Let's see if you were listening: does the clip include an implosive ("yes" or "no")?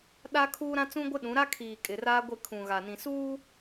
yes